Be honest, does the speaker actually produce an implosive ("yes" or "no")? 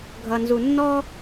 no